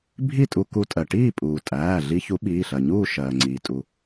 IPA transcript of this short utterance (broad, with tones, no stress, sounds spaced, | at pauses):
bʱ i˥˨ tʼ u˧ k u˧ tʼ ɜ˩ ʈ iː˥˨ pʼ uː˩ tʼ æː˩˧˩ ɮ i˧ ç u˨˥ ɓ iː˩˧˩ ɬ ɜ˩ ɲ uː˥˨ ʃ ɜː˩ ŋ͡ǀ iː˩ tʼ u˩